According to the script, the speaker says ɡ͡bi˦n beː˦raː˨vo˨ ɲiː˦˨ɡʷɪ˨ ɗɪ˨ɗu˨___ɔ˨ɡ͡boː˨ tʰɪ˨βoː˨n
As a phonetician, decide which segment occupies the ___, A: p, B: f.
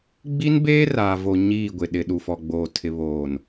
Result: B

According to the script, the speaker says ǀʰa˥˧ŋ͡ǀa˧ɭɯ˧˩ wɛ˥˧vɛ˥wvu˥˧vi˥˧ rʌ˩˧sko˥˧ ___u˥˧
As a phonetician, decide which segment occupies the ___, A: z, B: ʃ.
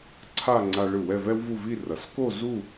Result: A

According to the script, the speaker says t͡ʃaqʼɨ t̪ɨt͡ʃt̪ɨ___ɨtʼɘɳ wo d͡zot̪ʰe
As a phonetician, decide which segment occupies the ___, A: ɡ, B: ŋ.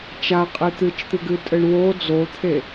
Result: A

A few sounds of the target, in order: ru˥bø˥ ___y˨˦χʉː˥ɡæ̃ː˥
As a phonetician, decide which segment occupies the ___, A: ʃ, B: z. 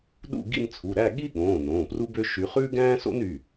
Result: A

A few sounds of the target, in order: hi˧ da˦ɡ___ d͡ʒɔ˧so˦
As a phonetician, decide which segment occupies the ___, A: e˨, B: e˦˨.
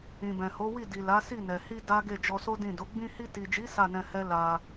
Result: B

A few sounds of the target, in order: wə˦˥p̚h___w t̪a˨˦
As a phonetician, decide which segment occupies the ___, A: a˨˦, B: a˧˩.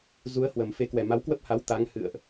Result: A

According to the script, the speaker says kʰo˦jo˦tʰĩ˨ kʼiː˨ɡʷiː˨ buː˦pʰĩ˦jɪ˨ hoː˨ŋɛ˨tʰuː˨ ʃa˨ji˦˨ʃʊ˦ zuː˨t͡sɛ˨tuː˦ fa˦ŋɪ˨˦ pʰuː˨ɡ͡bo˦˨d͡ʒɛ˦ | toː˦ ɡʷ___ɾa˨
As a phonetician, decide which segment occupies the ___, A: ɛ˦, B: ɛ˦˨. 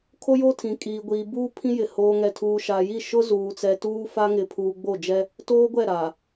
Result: B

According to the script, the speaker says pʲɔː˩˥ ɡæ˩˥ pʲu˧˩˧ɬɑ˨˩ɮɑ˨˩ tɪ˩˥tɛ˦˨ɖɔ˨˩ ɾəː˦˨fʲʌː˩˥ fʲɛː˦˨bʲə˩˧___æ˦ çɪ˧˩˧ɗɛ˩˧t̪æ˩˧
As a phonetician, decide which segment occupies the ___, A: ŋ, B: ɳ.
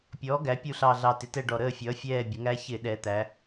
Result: A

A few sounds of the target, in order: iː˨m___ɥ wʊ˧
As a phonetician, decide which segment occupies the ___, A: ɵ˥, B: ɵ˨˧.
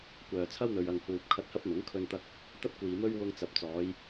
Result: A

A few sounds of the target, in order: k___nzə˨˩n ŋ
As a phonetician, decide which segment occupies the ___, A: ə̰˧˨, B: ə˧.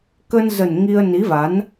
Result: B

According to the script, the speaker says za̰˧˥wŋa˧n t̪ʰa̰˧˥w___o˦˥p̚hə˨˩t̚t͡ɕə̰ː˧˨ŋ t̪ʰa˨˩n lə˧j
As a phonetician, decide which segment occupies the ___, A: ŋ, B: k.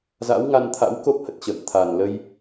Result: B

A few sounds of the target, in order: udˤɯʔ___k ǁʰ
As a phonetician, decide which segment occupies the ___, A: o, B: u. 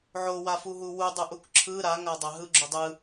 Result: B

